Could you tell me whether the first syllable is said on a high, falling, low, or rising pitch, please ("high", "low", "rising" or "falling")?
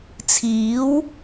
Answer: rising